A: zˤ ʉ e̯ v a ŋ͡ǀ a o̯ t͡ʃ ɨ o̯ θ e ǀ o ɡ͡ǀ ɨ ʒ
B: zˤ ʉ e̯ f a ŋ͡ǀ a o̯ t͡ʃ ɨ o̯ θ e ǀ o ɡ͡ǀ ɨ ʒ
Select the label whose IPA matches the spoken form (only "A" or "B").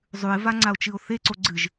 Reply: A